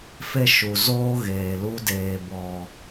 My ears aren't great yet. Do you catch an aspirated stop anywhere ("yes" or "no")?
no